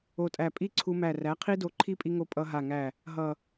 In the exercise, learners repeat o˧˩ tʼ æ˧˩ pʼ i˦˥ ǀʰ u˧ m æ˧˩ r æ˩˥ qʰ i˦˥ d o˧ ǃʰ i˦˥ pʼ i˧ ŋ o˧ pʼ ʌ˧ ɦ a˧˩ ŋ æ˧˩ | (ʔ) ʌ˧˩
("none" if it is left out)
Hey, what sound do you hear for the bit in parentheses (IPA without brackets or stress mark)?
ɦ